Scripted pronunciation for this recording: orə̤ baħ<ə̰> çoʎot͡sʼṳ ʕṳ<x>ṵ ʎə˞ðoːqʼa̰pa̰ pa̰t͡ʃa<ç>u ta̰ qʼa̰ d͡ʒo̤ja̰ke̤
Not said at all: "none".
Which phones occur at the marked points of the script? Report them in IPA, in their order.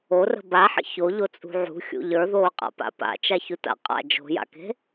ə̰, xʲ, ç

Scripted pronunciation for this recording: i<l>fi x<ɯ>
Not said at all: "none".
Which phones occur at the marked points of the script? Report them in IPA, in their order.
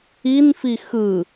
n, ɯ

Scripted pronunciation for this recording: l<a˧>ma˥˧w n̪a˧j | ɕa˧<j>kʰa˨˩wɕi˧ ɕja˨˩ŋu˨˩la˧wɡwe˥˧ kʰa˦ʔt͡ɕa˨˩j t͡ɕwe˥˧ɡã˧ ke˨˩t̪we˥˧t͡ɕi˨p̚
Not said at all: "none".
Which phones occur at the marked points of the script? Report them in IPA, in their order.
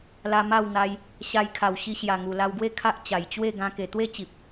a˧, j

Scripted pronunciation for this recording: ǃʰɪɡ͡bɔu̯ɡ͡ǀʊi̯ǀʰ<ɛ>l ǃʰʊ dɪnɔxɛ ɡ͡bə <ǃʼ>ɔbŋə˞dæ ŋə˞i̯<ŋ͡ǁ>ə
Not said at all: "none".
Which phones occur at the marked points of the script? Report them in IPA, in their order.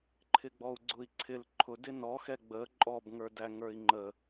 ɪ, ǃʼ, ŋ͡ǃ

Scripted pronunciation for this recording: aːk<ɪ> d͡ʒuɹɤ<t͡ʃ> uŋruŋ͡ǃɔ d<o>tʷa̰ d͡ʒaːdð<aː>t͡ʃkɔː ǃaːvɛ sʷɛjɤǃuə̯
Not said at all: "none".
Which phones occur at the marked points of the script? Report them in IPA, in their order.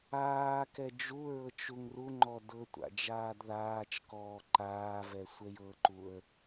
ɛ, t͡ʃ, ɤ, aː

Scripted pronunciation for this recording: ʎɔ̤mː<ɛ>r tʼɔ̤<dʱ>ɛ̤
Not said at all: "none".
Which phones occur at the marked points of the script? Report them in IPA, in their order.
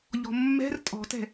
ɛ̤, t

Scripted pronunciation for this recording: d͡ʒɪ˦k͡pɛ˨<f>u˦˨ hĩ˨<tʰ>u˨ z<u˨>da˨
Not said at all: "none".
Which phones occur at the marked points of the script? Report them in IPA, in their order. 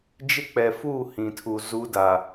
f, tʰ, u˦

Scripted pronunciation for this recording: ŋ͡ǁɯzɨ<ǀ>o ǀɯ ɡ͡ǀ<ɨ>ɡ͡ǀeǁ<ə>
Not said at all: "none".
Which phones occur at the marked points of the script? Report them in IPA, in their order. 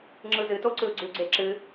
t, ʉ, ɨ

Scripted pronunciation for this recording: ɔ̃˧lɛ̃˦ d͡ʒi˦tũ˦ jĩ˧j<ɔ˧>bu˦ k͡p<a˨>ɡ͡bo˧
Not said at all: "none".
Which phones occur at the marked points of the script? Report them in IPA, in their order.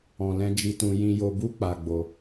o˧, a˧

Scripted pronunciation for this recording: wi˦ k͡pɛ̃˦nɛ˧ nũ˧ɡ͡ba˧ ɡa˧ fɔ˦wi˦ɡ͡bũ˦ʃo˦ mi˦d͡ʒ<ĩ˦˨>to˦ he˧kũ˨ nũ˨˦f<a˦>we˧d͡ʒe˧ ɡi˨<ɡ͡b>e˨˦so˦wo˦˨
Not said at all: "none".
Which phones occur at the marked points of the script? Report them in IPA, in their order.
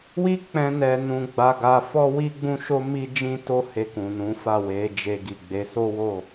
ĩ˦, a˦˨, ɡ͡b

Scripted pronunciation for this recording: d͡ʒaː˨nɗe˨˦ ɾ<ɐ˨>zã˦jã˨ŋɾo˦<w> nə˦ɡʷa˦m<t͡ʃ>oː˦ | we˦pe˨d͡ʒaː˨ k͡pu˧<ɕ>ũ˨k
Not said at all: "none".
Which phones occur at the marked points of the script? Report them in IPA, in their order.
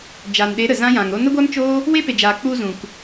ə˨, none, t͡ʃ, z

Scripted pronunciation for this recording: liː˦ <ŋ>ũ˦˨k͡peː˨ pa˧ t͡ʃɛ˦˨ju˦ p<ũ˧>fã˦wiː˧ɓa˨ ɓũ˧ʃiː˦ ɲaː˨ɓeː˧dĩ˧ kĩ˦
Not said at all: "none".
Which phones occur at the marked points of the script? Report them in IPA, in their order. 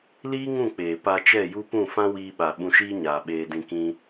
ŋ, ũ˦˨

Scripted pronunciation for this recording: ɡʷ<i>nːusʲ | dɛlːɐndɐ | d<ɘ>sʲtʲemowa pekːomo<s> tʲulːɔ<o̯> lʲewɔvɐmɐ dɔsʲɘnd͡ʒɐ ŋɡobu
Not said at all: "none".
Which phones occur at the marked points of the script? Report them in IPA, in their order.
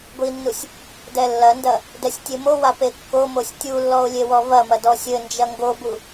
i, ɛ, sʲ, o̯

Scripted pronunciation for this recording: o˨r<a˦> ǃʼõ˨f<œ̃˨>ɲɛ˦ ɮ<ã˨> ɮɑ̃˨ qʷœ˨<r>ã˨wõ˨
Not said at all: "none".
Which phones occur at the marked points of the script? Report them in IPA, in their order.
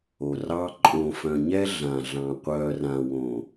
ɑ˦, œ̃˨, ã˨, r

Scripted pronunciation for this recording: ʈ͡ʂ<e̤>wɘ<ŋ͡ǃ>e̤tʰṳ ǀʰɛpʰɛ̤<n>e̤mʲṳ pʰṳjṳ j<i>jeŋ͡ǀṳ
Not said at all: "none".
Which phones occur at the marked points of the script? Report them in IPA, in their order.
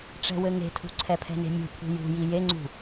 ɛ̤, ŋ, n, i

